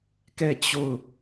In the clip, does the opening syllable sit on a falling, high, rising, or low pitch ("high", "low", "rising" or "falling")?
falling